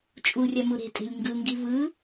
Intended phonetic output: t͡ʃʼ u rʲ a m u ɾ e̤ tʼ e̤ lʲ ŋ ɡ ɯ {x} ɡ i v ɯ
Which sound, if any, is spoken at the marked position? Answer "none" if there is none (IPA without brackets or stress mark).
ŋ